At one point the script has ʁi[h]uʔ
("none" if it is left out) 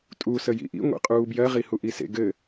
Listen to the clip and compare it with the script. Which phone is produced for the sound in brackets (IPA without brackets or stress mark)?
h